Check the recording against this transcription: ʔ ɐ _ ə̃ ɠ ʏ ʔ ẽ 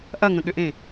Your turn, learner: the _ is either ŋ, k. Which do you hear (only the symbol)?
ŋ